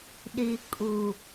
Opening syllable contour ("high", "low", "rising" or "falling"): low